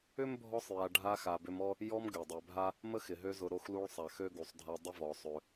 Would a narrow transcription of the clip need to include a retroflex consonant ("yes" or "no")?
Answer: yes